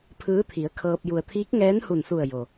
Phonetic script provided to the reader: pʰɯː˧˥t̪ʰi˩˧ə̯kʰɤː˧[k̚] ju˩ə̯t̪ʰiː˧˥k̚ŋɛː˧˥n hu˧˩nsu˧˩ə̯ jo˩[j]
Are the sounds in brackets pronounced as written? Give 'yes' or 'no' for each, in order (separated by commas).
no, no